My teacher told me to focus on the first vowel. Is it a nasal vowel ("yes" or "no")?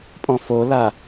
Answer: yes